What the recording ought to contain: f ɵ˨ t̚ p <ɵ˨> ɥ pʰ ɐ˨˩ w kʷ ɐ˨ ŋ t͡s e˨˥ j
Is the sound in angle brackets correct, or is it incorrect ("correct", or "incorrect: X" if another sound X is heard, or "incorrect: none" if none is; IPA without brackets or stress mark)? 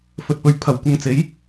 correct